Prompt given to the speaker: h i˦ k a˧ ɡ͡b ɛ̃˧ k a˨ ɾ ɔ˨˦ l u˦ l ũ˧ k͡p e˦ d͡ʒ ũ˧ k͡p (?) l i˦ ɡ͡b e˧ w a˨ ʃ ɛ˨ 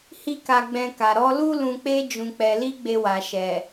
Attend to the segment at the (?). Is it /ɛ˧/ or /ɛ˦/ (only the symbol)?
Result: ɛ˧